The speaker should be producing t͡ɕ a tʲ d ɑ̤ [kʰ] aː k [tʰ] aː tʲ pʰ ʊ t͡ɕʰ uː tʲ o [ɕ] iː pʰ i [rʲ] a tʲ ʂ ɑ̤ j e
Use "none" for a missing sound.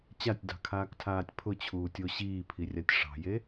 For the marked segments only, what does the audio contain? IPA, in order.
kʰ, tʰ, ɕ, rʲ

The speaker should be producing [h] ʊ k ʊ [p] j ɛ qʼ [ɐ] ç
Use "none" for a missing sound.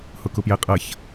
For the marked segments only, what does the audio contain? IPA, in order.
h, p, ɐ

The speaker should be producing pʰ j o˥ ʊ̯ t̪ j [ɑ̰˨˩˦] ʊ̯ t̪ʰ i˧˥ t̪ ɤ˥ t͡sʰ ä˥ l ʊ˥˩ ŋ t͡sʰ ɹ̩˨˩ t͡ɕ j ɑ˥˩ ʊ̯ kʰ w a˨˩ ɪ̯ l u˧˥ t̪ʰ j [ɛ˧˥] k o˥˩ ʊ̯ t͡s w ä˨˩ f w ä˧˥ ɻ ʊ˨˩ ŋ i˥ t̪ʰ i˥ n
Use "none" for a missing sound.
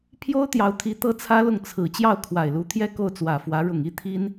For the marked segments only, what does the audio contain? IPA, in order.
ɑ˧˥, ɛ˥˧

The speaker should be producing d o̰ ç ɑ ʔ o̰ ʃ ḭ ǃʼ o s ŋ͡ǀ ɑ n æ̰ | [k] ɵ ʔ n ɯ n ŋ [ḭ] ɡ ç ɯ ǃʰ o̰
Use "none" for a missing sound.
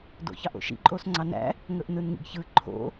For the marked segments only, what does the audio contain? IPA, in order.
ŋ, ḭ

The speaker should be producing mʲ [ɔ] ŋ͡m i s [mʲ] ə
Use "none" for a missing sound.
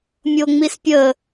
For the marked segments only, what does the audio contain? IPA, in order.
o, pʲ

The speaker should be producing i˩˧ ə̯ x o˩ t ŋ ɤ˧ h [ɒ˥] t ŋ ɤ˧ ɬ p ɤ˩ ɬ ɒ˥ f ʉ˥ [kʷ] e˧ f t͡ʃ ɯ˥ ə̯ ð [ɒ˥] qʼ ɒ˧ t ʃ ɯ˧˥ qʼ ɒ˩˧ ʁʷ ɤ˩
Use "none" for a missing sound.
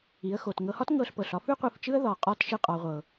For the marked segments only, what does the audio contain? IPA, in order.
ɒ˥, qʷ, ɒ˩

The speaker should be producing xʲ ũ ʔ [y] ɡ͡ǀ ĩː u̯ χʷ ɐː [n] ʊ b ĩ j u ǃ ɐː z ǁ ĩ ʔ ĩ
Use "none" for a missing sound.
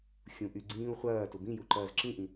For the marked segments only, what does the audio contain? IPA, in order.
y, t

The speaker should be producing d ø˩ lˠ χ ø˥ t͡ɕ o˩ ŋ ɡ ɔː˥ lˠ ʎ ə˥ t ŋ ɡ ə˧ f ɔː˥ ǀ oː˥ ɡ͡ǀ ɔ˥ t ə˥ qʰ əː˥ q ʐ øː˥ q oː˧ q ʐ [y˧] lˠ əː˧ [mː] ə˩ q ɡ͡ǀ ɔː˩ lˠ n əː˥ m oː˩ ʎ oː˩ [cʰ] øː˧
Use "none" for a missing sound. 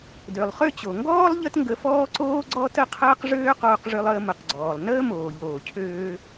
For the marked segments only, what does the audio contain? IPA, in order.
ø˧, m, cʰ

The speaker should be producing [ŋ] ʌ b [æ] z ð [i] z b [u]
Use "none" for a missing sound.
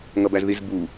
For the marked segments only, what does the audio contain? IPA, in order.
ŋ, æ, i, u

